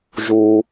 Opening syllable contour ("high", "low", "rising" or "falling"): low